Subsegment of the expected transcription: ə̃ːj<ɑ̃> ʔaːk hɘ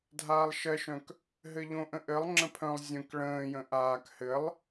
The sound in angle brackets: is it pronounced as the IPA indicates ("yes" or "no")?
no